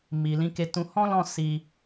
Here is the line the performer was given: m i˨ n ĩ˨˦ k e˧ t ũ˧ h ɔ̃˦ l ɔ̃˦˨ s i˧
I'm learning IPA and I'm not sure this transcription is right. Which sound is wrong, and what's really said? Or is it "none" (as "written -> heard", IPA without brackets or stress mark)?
n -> l